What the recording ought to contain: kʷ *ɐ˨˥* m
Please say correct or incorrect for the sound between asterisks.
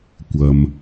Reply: incorrect